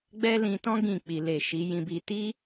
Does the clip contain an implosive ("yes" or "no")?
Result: no